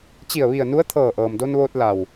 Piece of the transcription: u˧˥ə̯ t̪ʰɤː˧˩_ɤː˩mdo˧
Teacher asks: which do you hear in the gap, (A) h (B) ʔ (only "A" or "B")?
B